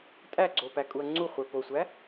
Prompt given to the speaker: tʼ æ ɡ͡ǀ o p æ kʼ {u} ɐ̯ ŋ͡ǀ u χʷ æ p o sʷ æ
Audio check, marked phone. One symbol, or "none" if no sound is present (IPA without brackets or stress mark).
u